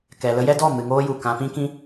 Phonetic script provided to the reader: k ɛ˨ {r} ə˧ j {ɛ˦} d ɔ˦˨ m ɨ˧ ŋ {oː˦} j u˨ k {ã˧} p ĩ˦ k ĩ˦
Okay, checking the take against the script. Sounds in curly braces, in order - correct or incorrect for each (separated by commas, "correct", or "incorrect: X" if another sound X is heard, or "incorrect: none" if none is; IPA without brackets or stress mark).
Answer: incorrect: l, correct, correct, correct